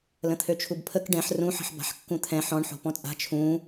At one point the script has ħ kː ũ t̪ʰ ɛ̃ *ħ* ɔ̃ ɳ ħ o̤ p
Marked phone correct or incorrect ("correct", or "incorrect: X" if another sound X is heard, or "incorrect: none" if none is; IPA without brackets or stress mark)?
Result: correct